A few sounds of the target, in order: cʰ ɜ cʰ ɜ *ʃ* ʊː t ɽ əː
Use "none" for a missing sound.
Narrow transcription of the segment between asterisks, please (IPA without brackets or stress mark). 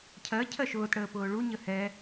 ʃ